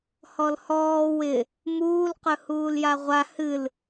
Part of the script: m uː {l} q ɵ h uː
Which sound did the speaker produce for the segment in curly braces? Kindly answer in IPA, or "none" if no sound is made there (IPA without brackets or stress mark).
l